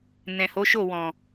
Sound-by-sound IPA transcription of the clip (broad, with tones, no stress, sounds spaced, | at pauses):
n ɛ̃˨ h o˨˦ ʃ o˦˨ w ɔ̃˨